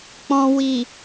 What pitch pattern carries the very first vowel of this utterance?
low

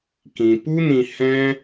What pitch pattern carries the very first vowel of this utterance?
low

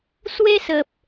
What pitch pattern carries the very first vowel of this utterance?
high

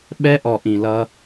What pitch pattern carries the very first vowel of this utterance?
high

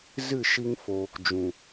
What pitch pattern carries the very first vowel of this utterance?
falling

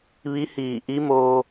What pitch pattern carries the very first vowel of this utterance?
rising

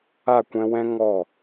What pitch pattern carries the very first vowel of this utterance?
falling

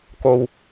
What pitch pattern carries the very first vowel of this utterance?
low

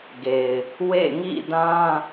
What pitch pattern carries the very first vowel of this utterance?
low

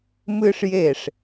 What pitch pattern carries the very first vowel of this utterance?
high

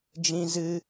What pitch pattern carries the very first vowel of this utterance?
high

